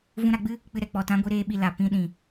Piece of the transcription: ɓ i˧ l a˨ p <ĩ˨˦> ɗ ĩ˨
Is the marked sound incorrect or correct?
correct